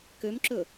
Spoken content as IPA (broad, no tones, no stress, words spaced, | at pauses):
kømǁɵ